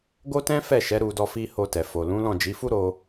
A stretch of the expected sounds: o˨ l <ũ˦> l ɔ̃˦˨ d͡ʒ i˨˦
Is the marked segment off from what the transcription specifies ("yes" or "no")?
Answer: yes